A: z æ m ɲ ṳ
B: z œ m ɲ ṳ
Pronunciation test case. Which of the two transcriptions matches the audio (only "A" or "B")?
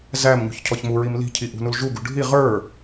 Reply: A